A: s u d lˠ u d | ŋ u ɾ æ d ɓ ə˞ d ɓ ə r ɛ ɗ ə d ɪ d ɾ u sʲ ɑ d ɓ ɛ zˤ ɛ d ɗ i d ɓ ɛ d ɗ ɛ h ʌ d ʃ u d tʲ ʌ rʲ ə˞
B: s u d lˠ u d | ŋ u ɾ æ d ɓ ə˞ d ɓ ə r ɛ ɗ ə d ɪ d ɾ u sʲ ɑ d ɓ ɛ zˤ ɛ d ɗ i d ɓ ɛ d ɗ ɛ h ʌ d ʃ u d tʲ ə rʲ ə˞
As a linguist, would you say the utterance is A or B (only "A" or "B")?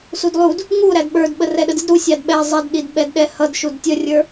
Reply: B